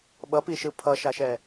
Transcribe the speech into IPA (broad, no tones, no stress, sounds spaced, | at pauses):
ɓ ʌ p i ʃ ɯ pʰ ʌ ʃ a ʃ ɛ